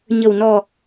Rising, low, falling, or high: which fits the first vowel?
low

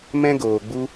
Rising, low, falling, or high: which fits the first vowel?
high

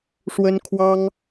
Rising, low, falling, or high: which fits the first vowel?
high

